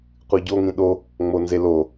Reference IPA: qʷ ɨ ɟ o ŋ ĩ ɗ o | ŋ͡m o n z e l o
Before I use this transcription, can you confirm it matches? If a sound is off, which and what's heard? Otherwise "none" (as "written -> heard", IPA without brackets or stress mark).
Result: none